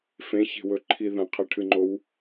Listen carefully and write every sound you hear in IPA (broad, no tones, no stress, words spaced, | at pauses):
fẽçe̤wɵǃʰi ðɐ̃qʰeʈʰɨŋ͡ǃow